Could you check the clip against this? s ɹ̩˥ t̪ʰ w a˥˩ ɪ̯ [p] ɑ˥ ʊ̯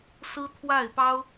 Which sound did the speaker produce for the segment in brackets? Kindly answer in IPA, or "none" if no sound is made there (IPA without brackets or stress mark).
p